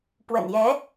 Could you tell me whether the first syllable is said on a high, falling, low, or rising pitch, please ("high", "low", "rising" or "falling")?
low